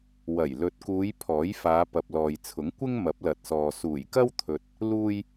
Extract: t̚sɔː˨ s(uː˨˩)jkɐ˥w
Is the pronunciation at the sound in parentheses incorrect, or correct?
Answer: correct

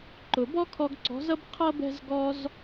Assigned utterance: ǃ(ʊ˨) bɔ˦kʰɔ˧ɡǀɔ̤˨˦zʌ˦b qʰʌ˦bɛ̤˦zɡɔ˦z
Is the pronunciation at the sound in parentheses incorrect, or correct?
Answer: correct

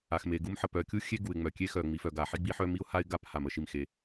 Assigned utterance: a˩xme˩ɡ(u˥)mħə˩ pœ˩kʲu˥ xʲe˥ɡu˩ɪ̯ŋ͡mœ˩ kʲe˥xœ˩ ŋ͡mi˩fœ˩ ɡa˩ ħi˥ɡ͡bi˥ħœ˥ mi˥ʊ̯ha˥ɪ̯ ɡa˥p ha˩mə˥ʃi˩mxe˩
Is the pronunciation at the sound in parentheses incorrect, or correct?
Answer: correct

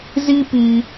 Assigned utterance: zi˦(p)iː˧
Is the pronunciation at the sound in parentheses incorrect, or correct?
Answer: correct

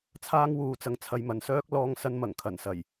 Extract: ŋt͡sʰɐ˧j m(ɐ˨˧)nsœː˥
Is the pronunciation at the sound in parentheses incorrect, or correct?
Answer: incorrect: ɐ˨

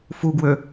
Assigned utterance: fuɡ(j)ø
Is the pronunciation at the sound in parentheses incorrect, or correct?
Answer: incorrect: w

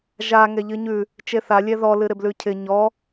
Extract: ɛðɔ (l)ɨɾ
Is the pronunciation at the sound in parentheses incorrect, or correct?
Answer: correct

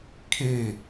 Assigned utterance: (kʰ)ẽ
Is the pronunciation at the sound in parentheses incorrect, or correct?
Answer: correct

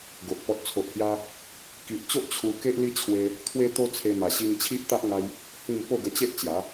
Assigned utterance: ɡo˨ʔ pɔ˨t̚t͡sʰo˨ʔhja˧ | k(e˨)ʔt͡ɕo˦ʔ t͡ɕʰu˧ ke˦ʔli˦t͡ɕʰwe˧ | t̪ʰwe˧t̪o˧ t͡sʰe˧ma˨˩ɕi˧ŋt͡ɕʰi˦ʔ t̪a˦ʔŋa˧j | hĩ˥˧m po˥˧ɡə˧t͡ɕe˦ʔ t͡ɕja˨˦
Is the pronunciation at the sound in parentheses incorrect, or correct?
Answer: incorrect: i˨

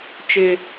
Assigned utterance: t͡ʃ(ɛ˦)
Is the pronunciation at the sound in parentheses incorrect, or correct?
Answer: incorrect: ɪ˦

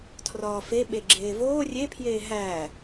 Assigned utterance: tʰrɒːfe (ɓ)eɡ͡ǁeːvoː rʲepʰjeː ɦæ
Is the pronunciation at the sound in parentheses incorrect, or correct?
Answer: correct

